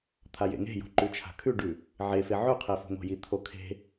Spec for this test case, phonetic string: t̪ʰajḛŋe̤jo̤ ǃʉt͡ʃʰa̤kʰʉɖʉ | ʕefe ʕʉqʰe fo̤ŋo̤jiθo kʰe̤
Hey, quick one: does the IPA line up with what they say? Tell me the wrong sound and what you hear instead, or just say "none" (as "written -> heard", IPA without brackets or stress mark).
θ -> t̪ʰ